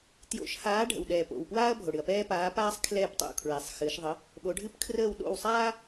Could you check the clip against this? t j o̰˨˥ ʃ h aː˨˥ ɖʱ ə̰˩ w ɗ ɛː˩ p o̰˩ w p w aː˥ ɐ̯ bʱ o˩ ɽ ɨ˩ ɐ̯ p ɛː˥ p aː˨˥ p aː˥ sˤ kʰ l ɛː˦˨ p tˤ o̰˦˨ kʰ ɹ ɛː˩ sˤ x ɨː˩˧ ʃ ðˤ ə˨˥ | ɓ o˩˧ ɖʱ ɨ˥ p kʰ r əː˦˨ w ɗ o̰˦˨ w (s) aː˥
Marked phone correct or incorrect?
incorrect